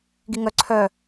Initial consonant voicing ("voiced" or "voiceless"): voiced